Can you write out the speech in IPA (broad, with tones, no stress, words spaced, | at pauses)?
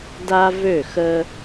da˦ vø˦˨ xə˦